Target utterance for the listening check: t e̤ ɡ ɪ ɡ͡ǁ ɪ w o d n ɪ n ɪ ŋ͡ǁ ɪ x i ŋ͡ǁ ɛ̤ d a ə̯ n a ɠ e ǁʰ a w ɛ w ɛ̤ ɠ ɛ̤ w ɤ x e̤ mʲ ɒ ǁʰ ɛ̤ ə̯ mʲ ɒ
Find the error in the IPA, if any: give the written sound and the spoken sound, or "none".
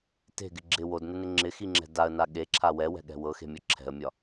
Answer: none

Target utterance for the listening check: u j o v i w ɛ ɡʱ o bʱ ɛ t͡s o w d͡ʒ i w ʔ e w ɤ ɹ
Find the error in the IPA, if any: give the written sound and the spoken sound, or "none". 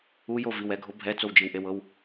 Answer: ɹ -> w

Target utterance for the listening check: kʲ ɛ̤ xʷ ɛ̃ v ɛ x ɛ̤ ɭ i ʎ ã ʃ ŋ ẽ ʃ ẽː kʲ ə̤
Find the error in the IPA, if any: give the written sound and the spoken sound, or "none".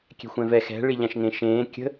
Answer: none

